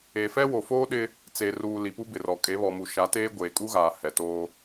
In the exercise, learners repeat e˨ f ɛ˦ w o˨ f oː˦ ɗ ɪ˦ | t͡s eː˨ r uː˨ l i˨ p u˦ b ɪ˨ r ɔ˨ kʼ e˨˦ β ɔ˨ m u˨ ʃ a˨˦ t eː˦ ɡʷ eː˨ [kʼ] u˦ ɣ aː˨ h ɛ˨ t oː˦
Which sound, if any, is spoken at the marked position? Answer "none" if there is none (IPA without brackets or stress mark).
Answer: kʼ